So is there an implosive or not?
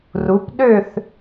yes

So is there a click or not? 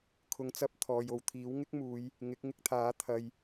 no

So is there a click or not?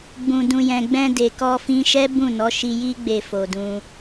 no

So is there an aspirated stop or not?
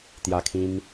yes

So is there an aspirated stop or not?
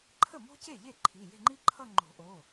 yes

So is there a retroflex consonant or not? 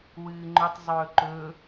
no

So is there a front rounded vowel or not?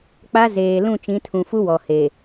no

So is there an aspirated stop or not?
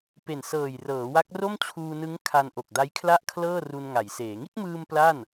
yes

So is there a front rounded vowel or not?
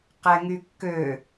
yes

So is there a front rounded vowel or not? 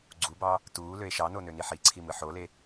yes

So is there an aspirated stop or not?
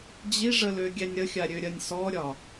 no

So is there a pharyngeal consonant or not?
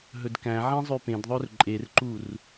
yes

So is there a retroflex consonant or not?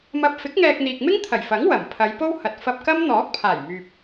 no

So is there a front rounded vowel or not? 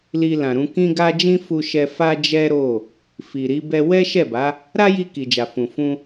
no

